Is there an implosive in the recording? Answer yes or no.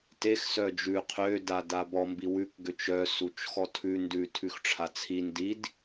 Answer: no